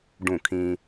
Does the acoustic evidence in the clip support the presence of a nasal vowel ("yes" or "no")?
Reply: yes